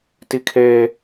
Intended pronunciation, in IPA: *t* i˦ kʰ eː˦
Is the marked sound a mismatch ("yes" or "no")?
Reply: no